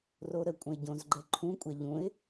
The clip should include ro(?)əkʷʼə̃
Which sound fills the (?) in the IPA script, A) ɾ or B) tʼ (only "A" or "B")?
A